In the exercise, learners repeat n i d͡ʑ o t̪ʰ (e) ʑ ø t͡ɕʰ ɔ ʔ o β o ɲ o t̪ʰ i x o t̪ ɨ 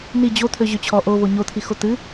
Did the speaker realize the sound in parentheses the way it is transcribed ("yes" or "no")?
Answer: no